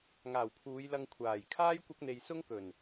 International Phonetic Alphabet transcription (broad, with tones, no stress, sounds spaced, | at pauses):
ŋ aː˨˩ w pʰ uː˨˧ j l ɐ˧ ŋ kʷʰ aː˨˩ j kʰ aː˥ j kʷ ɐ˥ k̚ n̪ e˧ j s ʊ˥ ŋ k ɵ˨˩ n